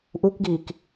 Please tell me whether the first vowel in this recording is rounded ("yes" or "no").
yes